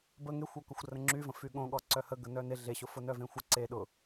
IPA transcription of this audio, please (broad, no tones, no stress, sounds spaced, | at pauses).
b ə ŋ e xʷ o k ʊ xʷ r ə̃ ŋ͡ǁ y v ə̃ f y ɠ õ ɠ ɔ ǀ œ h ə ɡ ə n œ n e ɮ e ɕ ʊ f ʊ n œ v ẽ xʷ ɪ ǀ e ɗ ʊ